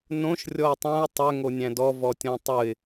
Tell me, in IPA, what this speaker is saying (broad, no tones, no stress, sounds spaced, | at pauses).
n õ ʃ rʲ ɔ ɪ̯ tˤ ã ʊ̯ tˤ ʏ ŋ o nʲ æ̃ d ɔ v ɔ tʲ ɔ̃ tˤ ɯ ɪ̯